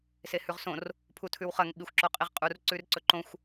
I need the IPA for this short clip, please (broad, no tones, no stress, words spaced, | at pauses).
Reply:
sehʉʁsõr | pʰutʰʉwχɐŋ ɓixʷǁoqʼiʁqʼur ǀʉrǀɵǃõxʷ